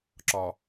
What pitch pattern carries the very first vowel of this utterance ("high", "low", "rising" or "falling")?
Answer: low